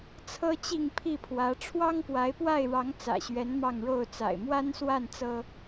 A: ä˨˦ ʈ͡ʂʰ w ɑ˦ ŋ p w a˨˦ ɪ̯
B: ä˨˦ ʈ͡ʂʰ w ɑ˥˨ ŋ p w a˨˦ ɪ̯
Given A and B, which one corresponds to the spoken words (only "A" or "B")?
A